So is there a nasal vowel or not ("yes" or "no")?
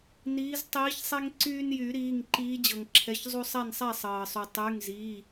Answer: no